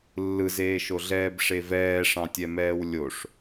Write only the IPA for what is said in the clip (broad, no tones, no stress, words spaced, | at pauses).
lːɯzeːʃoɮɛːb ʂevɛːʂɑ̃ tʲɛmɛːwlʲoʂ